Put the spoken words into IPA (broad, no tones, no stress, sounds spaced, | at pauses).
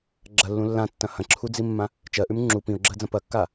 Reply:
ɡ͡ǁ ɐ lː ũ lː ã tː ɐ̃ h ɐ̃ ǁʰ u d͡z i mː ã | t͡ʃ ɜ ʔ ʉ m ŋ͡ǁ u p ĩ ʊ̯ ɡ͡ǁ ɜ d͡z ɐ̃ p ɐ kː a